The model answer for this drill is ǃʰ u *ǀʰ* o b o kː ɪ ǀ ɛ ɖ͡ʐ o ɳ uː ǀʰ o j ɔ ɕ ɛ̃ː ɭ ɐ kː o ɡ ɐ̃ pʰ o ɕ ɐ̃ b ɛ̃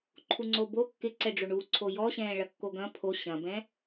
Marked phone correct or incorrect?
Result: incorrect